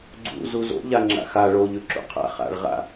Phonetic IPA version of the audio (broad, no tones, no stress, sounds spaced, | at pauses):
ɡ͡ǀ ṵ z u z o̰ ʎ a ŋ͡ǁ a̰ x a ɭ o ʎ ʉ ǁ ṵ qʰ a̰ χ a̰ ɭ ʁ a̰